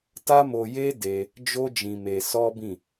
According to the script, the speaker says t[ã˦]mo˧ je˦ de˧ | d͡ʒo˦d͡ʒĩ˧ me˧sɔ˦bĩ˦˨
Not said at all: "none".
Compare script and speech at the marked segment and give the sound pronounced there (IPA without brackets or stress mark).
a˦